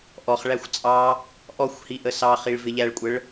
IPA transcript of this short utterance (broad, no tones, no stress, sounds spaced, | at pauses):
ʔ ɔ χ ɭ æ xʷ t͡sʼ ɑ | ʔ ɔ xʷ h i ʔ ə s ɑ χ i ɭ v ɪ ʎ æ ɭ kʷʼ ə ɭ